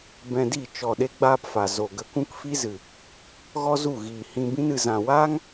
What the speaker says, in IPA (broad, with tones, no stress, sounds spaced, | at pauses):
b ɛ̃˧ d i˦˨ t͡ʃ ɔ˨ ɗ e˦ ɡ͡b aː˦ p f a˨ z o˨ ɡ ə˧ k ũ˦ k f i˦ z ɨ˨ | ɣ ɔ˦ z u˦˨ ɣ iː˨ h ĩ˧ b ĩ˧ n ɨ˨ z ã˨ w aː˦ ŋ